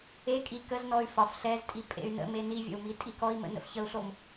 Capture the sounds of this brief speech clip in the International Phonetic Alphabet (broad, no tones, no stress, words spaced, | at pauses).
e kʼi kəznɔy̯ fɒf ɬɛztʼi pʼḛy̯nə̰me nivʲə̰u̯ mitʼikɔi̯mə̰ nə̰fçəu̯ɬom